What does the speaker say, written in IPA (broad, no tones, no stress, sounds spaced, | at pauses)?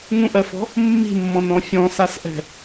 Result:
ŋ ũ ʔ ɜ f ɔ̤ | mː i̤ mː ɔ̃ n ɔ̃ fʲ ɔ̃ s a s ʔ ɛ̤